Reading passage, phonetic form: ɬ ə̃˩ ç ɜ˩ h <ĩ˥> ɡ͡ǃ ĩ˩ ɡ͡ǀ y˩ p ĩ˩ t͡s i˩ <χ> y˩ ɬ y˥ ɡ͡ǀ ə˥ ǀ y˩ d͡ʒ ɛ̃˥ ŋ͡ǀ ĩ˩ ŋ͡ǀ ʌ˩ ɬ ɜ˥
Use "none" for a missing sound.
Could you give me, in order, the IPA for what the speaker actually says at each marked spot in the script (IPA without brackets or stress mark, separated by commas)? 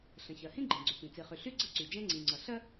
ĩ˥, χ